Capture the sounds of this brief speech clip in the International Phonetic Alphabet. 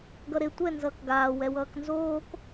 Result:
ɡ ʌ ɾ e tʷ ɛ n z ʌː k ɡ aː w ɛ w ʌː k n z oː k

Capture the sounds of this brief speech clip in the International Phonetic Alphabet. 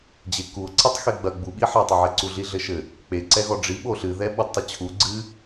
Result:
d͡ʑ e k u o̯ ǀ i tˤ x e ɡ͡b ɐ ɡ͡b u ɓ i ħ a tˤ ɐ ʕ ɛ ǀ u ɮ i ɮ ɘ ʃ ɘ | k͡p e ǀ ɛ ɣ ɔ ɖ͡ʐ i ɓ o ɬ ɨ ð ɛ ɓ ɔ d tˤ ɐ t͡ɕʰ u ɡ͡ǀ ɨ

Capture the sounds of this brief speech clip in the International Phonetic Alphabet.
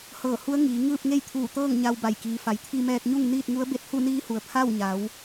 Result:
h ɤː˧˩ h u˧˥ ə̯ ŋ iː˩˧ ŋ ɯː˥˨ p̚ ŋ e˥˨ j t̪ʰ uː˧˩ t̪ ɤː˥˨ ŋ ɲ a˧ w b a˧˩ j k iː˩˧ f a˩˧ j t̪ʰ i˧ m ɛː˧ k̚ ɲ u˥˨ ŋ n iː˥˨ t̚ ŋ u˧˥ ə̯ b e˧ t̚ h u˥˨ n iː˧˥ h u˩ ə̯ pʰ a˥˨ w ɲ a˩˧ w

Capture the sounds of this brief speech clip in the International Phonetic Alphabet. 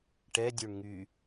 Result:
ʈ ɛ dʲ u ɳ ŋ y

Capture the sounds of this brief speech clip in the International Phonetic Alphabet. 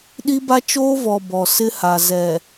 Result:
ɗ i˦ b a˦ t͡ʃ oː˦ v ɔ˨ b ɔ˨ s ɪ˦ h a˨ z ɛ˨

